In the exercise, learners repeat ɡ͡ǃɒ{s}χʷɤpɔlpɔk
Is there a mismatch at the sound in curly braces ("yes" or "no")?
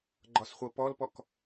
no